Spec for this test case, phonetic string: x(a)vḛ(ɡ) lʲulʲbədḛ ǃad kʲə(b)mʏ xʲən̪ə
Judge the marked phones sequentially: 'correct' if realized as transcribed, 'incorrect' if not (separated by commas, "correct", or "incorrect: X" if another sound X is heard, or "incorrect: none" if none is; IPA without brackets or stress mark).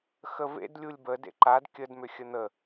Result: incorrect: ə, incorrect: d, incorrect: d